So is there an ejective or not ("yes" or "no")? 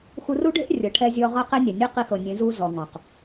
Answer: no